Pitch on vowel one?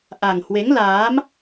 low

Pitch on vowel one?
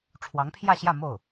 rising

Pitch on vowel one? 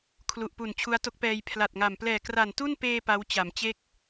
low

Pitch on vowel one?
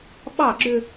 falling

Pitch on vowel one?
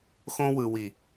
high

